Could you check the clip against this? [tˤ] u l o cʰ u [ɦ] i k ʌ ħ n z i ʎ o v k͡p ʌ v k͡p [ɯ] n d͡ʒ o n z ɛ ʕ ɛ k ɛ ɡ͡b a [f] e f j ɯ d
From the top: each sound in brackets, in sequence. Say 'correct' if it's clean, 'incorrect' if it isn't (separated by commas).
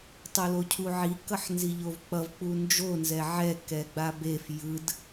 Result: correct, incorrect, incorrect, incorrect